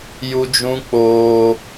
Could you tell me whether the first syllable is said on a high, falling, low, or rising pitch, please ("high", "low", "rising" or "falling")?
high